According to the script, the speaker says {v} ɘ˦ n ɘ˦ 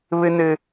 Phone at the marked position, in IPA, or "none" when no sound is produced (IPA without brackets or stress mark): β